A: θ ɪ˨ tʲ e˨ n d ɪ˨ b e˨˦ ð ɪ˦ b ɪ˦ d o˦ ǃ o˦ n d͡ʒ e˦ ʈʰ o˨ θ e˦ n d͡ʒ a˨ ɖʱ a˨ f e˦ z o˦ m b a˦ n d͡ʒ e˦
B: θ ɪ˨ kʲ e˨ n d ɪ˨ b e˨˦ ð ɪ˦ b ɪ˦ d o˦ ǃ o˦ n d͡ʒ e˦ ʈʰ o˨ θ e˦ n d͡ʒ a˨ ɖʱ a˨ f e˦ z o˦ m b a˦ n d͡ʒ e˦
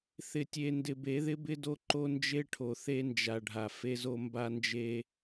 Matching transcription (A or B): A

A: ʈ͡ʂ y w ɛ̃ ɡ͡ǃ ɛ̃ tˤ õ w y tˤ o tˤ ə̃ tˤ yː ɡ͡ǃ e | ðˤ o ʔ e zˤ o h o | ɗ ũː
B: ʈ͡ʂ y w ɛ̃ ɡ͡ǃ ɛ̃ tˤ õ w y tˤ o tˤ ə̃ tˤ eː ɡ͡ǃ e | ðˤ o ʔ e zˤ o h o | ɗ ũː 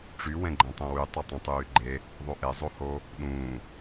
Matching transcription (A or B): A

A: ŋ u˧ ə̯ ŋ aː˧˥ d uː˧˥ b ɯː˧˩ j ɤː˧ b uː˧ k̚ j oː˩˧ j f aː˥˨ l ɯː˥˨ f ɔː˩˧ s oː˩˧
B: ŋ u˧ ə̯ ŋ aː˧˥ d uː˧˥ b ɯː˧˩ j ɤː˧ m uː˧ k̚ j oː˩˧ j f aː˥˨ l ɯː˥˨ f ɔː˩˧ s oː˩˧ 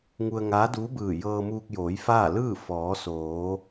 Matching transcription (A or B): B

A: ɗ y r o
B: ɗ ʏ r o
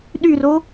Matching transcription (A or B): A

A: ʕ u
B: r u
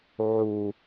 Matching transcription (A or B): A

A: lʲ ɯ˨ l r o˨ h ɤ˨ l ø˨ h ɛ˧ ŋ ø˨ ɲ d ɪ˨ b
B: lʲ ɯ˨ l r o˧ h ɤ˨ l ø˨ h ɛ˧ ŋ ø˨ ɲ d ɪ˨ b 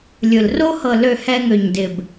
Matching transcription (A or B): B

